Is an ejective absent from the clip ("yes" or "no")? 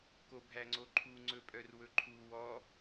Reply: no